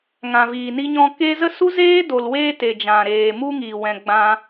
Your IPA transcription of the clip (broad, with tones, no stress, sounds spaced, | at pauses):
ŋ ã˨ v iː˨ n i˧ ɲ ɔ̃˧ k e˧ z ə˦ s u˦ z eː˦ d o˨ l w eː˧ t e˨ d͡ʒ ã˨ ɾ eː˨ m u˧ ŋ i˨ w ɛ̃˨ ɡ͡b ã˧